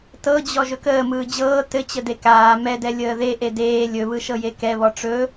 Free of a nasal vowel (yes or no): yes